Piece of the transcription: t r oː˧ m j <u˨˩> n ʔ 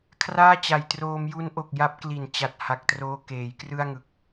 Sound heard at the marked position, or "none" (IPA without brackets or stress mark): u˦˥